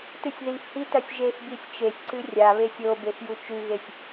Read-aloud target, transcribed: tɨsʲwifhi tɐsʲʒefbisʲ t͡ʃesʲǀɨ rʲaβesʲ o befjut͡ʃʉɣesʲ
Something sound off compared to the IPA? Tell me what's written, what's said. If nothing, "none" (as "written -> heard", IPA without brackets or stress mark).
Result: w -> ð